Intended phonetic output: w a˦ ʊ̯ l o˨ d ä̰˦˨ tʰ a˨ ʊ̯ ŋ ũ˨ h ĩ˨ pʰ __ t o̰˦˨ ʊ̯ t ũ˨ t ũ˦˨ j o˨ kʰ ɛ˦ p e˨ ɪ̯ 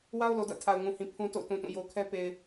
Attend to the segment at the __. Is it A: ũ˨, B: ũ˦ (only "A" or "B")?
B